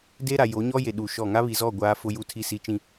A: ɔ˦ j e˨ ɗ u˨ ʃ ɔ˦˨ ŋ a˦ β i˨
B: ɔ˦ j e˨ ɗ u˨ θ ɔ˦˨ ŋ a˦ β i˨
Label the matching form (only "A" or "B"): A